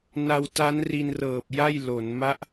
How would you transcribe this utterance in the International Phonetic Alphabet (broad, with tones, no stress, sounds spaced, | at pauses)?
n a˧ w t a˦˥ n r i˧ n r ɤː˨˩ p̚ j a˥˩ j l o˩˦ n m a˦˥ ʔ